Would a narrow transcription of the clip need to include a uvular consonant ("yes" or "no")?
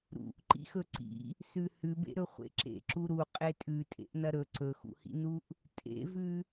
yes